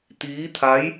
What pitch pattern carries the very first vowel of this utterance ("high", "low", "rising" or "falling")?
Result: rising